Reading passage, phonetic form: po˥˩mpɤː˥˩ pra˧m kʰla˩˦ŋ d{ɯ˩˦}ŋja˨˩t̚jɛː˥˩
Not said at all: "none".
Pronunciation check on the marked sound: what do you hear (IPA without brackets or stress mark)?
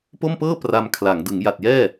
ɯ˩˦